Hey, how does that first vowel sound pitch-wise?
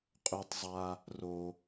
high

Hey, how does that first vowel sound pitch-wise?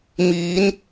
rising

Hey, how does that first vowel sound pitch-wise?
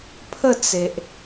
falling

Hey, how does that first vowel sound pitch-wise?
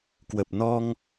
low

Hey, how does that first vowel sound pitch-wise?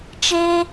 high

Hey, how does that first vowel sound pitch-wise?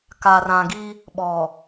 low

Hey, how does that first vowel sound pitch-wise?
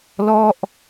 falling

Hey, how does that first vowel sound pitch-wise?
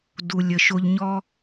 low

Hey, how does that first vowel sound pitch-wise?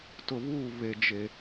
low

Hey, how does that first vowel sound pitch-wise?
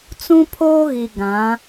high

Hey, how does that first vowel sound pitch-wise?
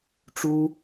high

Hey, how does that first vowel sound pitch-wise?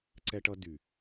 high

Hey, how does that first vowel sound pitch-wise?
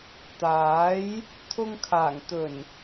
rising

